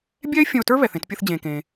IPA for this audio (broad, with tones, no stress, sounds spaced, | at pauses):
bʲ ɛ˥ ɪ̯ fʲ ə̃˧ ʊ̯ t ə˞˥ β ɛ˩ θ ẽ˧ t pʲ ə˧ θ d͡ʑ ẽː˩ k ẽː˩